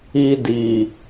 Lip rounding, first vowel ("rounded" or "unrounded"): unrounded